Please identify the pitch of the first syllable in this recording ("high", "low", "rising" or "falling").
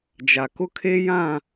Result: low